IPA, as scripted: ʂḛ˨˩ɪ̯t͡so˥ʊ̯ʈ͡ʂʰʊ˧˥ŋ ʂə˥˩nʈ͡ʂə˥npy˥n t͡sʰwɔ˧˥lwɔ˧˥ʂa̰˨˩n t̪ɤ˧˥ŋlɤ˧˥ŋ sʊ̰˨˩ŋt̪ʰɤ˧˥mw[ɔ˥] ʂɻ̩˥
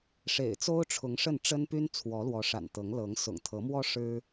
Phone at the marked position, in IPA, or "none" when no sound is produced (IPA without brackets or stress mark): ɔ˥